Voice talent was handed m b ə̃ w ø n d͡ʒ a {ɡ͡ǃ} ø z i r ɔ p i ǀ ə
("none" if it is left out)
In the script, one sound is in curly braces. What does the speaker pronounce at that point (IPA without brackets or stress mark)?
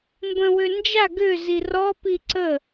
ɡ